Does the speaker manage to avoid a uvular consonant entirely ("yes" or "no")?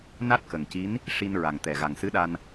yes